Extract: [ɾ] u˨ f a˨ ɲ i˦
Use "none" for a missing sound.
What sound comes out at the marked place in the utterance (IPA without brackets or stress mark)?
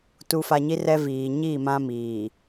t